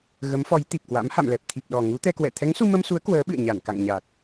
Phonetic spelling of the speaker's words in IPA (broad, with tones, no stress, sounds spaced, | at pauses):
ɣ ə˨˦ m f ɔ˨˦ j t̪ i˨˩ p̚ k w a̰˧˥ m h a̰˧˨ m l ɛ˨˩ p̚ t̪ʰ i˨˩ p̚ ɗ ɔ˨˩ ŋ u˨˦ t̪ ɛ˧ k w ɛ̰˧˨ t̪ʰ ɛ˨˦ ŋ s u˧ m ə˧ m s u˨˦ ə̯ k w əː˨˦ ɓ ɨ̰˧˨ ə̯ ɲ a˧˩ n k a̰˧˨ ŋ ɲ a˨˩ t̚